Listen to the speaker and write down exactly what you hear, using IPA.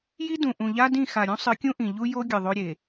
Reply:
j i˦ d ũ˨ ʔ ũ˨ ʎ a˦ d ĩ˦˨ x a˨ ɾʲ ũ˦ sˤ ɨ˨˦ kʲ ũ˦ ʔ ĩ˨ ʎ u˦ j o˦ ɡʲ ɨ˨ ðˤ o˦ ɾʲ e˨

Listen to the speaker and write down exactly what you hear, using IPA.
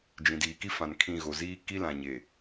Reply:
d͡ʒ ĩ˨ d iː˨ k i˦ f ã˨ n kʰ ĩ˦˨ ɣ o˨ z iː˦ k i˦ l ã˨ ɲ e˨

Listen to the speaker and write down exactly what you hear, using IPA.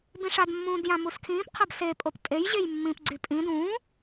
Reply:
b ĩ ʂ a d mː ũː d j ã m u s kʰ ĩː p qʰ a b s e pʼ o p tʼ e j ʑ e j mː ĩ p ɡ͡ǀ y pʼ ĩ d ũː

